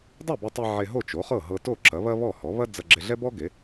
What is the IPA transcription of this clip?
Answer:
dˤ e˥˩ b e˧ tˤ e˧ ʕ e˧ ɦ o˥˩ t͡ʃ o˩˥ χ ɤ˥˩ ɦ ɤ˧ t o˥˩ ǁ ɐ˩˥ β ɐ˥ β ɔ˥˩ h ɔ˩˥ β ɐ˥ d͡z ɐ˧ ɡ͡ǁ e˧ ɮ ɛ˥ b ɔ˥ ɡ e˩˥

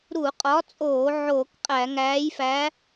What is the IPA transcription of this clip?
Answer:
ɾ u˧˩˧ qʼ ɒ˨˥ t͡sʼ oː˧˩˧ ʕ oː˧˩˧ k qʼ æ˧˩˧ ŋ æː˨˥ j f æ˨˥

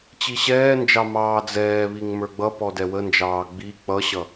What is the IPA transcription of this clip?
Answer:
t͡ɕ i ɕ ɛː n d͡ʒ ɑ m ɑː d͡z ɛː β i ŋ m ə˞ ɡ͡b ʌ p ɔ d ɛ w ə n d͡ʒ ɑː ɡ͡b i k͡p ʌ ɕ ʌ

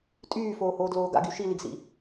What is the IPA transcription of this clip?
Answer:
tʼ yː f oː h oː d l oː ɡ a̰ ɡ y ʃ i l i ɡ s ḭ

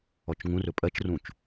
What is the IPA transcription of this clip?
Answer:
ɔ t͡ʃ ŋ ũ r ɵ pʼ ɜ t͡ʃ r ũ t͡ʃ

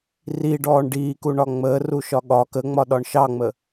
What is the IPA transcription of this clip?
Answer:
r i ɖ ɔː ɳ ɖ iː k u ɳ ɒ ŋ͡m əː r u ʃ ɒ ɠ ɒ k ə ŋ͡m ɒ ɗ ɒ ɳ ʃ ɑ ŋ͡m ə

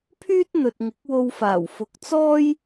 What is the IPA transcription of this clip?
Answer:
pʰ yː˥ t̚ n̪ ɵ˨ t̚ ŋ ɪ˨˥ k̚ w o˧ w f aː˨˩ w f ʊ˨˥ k̚ t͡s ɔː˥ j

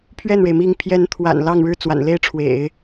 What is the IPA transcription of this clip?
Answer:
pʰ ɥ ɛ˥˩ n ɻ e˩ ɪ̯ m i˧˥ ŋ pʰ j ɛ˧˥ n t̪ʰ w a̰˨˩ n l ɑ˥˧ ŋ ɻ ɻ̩˥˩ t͡s w a̰˨˩ n l e˥ ɪ̯ ʈ͡ʂʰ w ḛ˨˩˦ ɪ̯

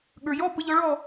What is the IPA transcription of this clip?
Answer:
ɠ ə˞˩ j ɔ˧˥˧ p ə˨˦ ʎ ɔ˨˦ ɭ ɔ˥˨

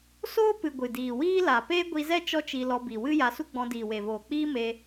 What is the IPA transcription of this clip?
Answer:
s oː˦ p ɨ˨ ɡʷ ɨ˨ d iː˨ w iː˦ l a˨ p eː˦ ɡʷ i˧ z ɛ˦ t͡ʃ ɔ˦ t͡ʃ i˧ l ɔ˧ b i˨ w ɨ˦ j a˧ s u˦ ɡ͡b ɔ̃˧ d iː˨ w e˨ v oː˨ k͡p iː˦ m e˧

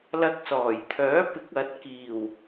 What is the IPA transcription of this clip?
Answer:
l ɐ˧ k̚ s ɔː˨˩ j t̪ʰ œː˨˥ p ɪ˨˥ k̚ ɐ˨˥ t̚ k iː˨˩ w

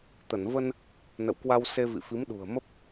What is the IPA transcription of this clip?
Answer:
t̪ ə˧˩ n v ə˧ n | n ə̰˧˨ w k w a˧ w s e˧ v ḭ˧˨ f i˨˦ m ɗ ṳ˨˩ ə̯ m ə˦˥ p̚

